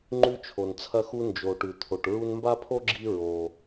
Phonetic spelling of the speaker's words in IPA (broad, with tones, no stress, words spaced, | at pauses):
ŋ͡ǃʉ˦t͡ʃʰo˨nt͡sʰɐ˦xu˦ nd͡ʒo˨ʈʉ˨ t̪ʰo˨ʈ ɹu˦nmba˥pʰo˥ɡ͡ǁi˦ ɹo˨